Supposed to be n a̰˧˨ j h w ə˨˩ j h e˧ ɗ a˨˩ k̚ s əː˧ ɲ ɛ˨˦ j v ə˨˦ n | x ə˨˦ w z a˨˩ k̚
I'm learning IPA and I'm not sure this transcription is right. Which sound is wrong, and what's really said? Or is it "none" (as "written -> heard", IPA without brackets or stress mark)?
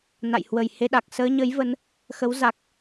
ɛ˨˦ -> ə˨˦